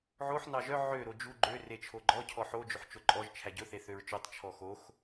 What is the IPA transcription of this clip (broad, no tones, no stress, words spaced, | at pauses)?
ʕoħ nɑʒœ ʕø ɾod͡ʒu ɡ͡ǃø ret͡ʃʰoɡ͡ǃɔ cʰɔħo d͡ʒɵħt͡ʃoǃʼɔʒ t͡ʃʰæɟɵ θeθøɹt͡ʃotˤ t͡ʃʰɔxox